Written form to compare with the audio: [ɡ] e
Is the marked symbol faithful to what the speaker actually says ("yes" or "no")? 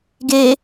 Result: yes